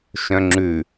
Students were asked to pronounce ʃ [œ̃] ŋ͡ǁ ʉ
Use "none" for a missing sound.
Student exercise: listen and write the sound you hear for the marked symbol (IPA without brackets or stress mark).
œ̃